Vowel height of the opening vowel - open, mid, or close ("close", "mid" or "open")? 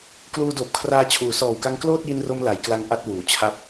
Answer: close